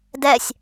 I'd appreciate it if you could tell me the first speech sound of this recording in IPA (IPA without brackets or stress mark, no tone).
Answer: d